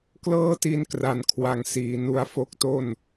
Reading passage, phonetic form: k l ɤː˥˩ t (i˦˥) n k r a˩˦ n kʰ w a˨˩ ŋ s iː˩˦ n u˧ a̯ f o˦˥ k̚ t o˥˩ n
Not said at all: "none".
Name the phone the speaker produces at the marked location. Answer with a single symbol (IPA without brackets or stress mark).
i˦˥